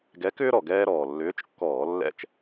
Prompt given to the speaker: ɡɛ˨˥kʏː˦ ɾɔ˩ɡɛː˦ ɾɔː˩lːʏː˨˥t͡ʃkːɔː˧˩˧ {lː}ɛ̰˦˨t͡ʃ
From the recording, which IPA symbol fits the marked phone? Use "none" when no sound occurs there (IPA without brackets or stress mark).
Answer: lː